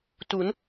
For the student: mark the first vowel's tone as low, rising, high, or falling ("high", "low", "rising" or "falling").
rising